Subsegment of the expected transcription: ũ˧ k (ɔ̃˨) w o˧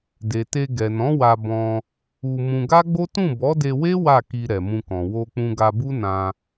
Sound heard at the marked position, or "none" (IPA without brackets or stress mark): ɔ̃˨